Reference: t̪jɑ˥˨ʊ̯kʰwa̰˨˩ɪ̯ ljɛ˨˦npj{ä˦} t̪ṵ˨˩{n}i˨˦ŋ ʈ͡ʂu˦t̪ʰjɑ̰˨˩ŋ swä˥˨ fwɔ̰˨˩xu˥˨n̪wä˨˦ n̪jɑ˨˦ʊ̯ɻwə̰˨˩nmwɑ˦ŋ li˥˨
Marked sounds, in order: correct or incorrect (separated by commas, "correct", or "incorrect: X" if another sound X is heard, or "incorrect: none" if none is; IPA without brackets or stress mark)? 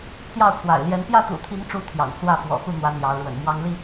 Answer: incorrect: ä˥˨, incorrect: t̪ʰ